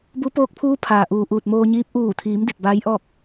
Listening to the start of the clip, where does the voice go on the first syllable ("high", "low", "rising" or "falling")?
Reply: rising